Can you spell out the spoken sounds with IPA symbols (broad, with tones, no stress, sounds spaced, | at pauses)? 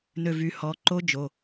n ø˧˩ v y˩˧˩ h ɔ˩˧˩ ǃ o˦˥ d͡ʒ o˩˧˩